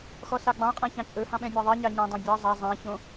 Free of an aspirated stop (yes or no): yes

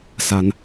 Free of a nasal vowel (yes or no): yes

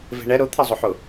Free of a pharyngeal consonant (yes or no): no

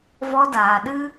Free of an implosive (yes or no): no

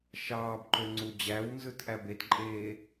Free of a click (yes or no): no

